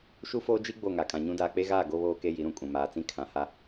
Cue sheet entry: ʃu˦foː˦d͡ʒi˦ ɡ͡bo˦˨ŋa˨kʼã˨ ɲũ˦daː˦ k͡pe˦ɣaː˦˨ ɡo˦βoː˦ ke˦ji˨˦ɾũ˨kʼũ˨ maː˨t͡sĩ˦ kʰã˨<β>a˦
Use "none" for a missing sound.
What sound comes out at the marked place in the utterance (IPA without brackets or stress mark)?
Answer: h